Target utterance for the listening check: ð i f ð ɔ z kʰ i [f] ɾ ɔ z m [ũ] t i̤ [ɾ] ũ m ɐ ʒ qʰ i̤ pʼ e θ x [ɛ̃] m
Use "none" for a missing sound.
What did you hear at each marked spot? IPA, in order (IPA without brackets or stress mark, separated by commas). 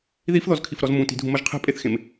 f, ũ, dʱ, ẽ